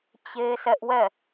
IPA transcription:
t͡ɕ e˦ sʰ ɛ˦ ʔ w ɛ˦˨

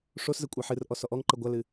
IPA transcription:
ʂ o s z ɘ kʷʼ a ħ ɨ r ʔ ɔ s ɔ ʔ ɔ ŋ ǃ ɘ ɡʷ a l ɨ

